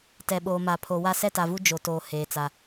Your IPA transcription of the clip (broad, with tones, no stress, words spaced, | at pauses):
tɛ˨ɓoː˨ma˨ pʰo˨wa˦ sɛ˦ta˨vu˦ d͡ʒo˨toː˨ heː˨t͡sa˨